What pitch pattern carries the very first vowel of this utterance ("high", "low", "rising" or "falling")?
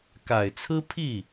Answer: low